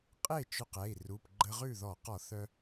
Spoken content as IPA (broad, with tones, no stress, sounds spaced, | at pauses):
qʼ e˥˩ t͡ʃ œ˧ q ɛ˩˧˩ i̯ r u˩˧˩ p ɡ͡ǃ ə˧ ʁ ʉ˥˩ ð ɔ˧˩˧ q ɔ˧˩˧ θ œ˧